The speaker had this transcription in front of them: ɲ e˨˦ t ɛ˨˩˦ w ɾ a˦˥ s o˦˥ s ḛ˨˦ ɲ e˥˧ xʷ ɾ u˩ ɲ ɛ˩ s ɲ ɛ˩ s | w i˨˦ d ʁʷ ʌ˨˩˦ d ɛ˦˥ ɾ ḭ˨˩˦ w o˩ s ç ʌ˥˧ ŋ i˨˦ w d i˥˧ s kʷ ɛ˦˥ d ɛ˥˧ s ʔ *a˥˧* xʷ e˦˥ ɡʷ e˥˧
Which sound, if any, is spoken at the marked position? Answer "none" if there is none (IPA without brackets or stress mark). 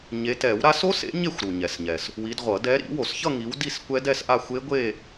a˥˧